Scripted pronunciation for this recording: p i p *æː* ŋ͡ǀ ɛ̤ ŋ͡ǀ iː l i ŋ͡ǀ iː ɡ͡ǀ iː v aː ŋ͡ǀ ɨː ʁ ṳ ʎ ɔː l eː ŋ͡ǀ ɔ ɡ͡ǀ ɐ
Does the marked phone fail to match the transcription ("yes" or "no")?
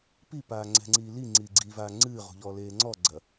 yes